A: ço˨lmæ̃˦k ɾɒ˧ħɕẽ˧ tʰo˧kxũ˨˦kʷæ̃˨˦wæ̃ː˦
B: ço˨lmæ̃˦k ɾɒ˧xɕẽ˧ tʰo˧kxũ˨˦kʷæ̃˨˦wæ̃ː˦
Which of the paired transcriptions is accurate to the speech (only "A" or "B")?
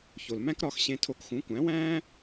B